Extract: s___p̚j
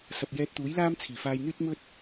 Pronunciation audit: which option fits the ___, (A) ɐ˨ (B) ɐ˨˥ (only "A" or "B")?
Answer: A